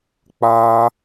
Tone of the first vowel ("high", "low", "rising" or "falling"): high